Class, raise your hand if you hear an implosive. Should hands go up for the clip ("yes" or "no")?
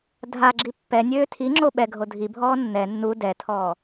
yes